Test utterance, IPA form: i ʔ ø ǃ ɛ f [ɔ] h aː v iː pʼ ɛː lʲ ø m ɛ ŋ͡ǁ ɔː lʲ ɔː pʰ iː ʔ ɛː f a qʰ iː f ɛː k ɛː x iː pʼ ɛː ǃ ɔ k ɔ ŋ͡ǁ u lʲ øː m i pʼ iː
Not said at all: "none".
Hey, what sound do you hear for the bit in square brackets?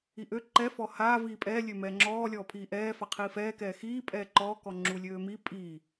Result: ɔ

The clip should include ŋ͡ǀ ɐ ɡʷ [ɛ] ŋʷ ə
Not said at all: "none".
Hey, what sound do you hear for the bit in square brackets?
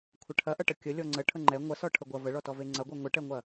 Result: ɛ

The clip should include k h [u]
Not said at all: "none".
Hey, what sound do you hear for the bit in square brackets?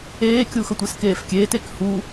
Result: u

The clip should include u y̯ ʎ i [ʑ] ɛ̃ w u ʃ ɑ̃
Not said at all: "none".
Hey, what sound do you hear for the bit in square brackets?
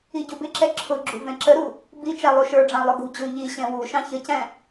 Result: ɕ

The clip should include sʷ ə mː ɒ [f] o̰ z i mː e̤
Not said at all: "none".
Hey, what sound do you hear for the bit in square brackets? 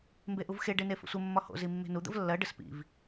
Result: h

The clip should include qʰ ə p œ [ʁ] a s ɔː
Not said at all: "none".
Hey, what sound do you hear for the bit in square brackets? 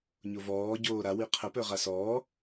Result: ʁ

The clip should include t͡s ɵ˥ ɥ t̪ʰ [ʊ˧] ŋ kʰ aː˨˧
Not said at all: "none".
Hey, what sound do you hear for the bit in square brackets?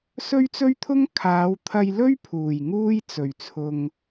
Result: ʊ˥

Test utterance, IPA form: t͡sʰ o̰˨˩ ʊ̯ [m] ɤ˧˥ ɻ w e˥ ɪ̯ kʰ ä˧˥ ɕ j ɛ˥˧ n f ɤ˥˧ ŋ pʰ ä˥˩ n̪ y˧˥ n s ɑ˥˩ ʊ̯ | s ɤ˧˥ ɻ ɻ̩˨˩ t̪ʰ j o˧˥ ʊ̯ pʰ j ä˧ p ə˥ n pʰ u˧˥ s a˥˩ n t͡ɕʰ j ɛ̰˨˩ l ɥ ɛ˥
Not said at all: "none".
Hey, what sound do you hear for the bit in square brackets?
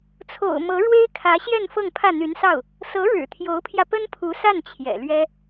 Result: m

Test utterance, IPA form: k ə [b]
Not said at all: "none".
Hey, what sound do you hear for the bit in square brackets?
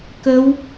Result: w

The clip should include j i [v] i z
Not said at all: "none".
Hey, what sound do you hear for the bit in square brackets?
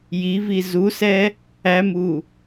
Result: v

